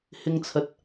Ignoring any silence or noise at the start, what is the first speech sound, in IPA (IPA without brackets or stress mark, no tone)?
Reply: h